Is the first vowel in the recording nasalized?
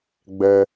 no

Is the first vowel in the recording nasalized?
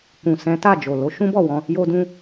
yes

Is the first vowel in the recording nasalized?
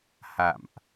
no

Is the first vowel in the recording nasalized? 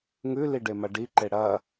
no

